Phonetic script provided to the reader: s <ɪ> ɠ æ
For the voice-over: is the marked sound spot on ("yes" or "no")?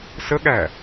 no